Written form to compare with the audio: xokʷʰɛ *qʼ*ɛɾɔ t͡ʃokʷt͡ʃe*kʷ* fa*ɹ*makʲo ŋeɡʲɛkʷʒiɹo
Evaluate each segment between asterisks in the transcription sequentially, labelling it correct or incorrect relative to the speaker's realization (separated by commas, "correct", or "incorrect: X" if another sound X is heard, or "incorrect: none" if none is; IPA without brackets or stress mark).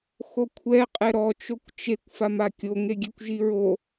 correct, correct, incorrect: none